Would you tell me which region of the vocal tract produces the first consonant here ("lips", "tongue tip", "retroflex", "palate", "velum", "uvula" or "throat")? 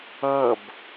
lips